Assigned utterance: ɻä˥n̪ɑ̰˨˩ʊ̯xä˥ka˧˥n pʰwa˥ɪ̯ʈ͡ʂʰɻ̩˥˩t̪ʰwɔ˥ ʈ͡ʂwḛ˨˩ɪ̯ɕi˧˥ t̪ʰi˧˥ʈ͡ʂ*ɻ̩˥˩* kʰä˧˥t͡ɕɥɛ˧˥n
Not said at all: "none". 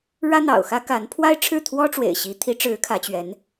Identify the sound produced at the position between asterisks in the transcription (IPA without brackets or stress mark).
ɻ̩˧˥